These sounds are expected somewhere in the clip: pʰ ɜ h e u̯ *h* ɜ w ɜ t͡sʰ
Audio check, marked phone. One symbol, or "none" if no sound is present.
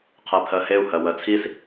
h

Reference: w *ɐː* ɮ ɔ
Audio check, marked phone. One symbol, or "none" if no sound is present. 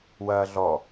ɐː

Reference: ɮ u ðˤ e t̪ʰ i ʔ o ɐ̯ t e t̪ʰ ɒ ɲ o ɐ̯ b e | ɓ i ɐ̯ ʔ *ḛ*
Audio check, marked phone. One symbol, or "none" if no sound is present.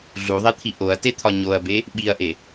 e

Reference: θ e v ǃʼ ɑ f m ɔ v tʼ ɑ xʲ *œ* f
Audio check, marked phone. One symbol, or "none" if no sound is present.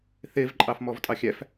æ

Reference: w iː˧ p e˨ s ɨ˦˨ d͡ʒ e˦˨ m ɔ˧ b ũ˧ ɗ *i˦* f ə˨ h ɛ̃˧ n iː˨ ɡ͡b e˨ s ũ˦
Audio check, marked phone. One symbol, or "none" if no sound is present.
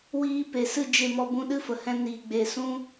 ɨ˦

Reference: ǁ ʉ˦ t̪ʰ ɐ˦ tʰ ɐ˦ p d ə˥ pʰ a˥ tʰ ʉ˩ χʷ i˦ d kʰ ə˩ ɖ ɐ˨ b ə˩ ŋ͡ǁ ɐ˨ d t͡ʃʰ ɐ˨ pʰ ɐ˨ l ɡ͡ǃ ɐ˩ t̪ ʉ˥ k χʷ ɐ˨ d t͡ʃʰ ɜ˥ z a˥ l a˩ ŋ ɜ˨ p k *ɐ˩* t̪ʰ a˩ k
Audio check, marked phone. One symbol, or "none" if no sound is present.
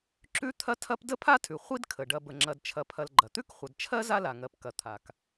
ɐ˩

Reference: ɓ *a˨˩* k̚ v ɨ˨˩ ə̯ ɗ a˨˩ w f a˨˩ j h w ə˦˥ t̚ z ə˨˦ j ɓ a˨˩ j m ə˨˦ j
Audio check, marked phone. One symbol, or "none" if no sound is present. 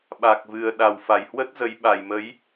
a˨˩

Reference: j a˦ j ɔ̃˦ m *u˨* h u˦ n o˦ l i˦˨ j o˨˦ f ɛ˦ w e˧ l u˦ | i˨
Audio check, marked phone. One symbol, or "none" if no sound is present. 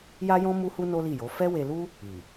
u˦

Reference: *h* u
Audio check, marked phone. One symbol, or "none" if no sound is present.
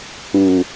h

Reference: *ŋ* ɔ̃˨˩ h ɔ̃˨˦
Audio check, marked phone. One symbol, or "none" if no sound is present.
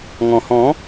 ŋ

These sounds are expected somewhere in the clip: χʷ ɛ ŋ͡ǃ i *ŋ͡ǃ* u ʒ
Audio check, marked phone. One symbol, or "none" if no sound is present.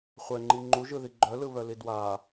ŋ͡ǃ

